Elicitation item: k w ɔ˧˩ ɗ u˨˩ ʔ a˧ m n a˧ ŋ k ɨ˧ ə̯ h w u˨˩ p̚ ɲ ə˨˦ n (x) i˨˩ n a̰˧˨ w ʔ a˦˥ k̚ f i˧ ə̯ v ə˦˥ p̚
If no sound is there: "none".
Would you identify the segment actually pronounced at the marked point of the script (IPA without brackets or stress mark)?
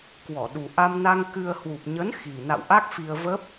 x